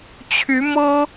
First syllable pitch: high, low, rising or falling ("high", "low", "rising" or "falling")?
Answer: rising